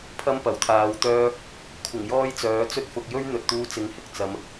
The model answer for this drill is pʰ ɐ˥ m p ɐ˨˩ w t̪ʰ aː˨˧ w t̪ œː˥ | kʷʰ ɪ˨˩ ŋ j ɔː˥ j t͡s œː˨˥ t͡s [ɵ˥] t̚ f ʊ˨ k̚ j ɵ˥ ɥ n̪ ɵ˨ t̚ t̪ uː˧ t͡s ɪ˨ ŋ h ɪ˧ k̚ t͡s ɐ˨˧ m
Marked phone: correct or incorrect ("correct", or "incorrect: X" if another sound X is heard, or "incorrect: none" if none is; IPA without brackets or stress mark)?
correct